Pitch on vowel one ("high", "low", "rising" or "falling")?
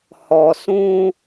low